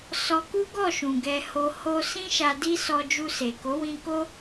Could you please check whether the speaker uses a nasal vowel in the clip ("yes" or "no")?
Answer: yes